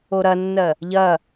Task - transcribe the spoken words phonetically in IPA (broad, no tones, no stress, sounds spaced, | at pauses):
o ɾ ɐ nː ɜ | ʎ ɐ